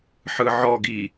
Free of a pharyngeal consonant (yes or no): no